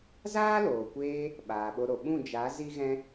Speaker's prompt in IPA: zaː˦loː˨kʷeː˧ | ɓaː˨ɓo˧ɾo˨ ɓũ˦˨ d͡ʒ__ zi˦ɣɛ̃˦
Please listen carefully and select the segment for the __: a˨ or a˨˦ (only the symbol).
a˨˦